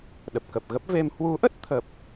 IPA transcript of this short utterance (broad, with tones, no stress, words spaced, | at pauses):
ɗə˨˩p̚kə˨˩p̚ɣə˦˥p̚ ve˧m hwu˨˦ʔə˦˥t̚ t̪ʰə˨˩p̚